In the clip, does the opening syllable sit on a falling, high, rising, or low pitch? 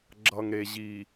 low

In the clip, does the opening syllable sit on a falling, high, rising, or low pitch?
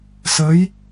rising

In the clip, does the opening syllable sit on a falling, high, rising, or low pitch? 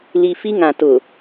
low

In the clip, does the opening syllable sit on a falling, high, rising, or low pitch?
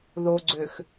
low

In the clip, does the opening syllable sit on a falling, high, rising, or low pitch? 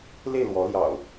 falling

